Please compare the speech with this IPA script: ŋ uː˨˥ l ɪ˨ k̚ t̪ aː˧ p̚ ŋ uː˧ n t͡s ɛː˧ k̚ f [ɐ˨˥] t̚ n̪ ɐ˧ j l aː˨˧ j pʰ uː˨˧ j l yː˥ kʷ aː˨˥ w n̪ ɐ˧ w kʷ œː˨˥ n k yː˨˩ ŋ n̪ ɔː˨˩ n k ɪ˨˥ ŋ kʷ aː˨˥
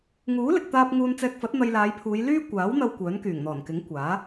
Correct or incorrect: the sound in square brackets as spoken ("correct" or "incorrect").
correct